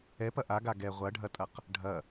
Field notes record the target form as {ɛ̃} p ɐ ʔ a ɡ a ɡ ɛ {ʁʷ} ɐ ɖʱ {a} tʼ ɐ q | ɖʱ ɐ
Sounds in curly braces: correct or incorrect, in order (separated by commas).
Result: incorrect, correct, incorrect